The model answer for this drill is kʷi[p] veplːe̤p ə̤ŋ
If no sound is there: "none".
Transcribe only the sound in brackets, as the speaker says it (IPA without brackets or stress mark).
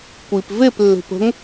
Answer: p